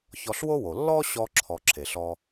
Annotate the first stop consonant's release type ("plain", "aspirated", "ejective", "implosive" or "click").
click